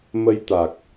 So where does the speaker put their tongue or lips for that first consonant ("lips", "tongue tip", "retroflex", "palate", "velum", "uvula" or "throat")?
lips